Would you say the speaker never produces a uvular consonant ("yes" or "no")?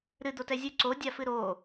yes